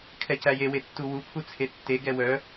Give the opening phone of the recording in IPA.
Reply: kʰ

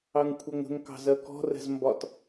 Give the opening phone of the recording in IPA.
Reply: ɑ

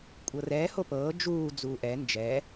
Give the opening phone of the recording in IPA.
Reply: kʷʼ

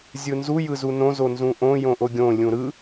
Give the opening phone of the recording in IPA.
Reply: zʲ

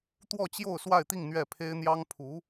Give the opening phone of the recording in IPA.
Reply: t̪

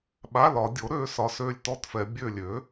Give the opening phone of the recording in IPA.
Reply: ɓ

